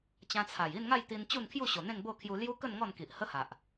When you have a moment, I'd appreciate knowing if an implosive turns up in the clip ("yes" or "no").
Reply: no